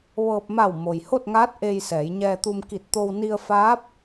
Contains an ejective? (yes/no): no